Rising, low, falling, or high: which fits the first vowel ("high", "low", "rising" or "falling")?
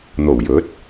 low